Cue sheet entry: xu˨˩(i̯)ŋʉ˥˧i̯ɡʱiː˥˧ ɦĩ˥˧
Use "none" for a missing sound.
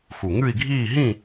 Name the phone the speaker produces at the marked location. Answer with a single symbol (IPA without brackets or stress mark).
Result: none